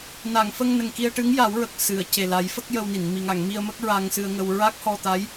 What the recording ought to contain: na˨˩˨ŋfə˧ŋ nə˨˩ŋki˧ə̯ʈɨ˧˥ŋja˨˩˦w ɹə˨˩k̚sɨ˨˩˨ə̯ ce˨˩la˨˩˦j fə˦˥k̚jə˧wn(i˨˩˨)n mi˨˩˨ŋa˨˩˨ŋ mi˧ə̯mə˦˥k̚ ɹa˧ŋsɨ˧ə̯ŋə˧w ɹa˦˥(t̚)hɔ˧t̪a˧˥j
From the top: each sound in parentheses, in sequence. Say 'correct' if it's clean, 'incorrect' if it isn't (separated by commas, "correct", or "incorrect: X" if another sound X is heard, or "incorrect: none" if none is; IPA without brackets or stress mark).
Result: correct, incorrect: k̚